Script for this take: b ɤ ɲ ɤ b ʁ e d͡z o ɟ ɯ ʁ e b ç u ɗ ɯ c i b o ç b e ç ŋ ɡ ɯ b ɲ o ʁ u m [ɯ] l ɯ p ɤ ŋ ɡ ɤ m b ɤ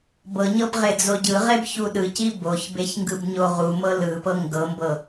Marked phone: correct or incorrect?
incorrect